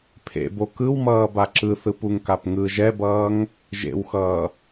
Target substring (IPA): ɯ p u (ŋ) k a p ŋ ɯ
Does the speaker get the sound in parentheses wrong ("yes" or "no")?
no